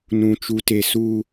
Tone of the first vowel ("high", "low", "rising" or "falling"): high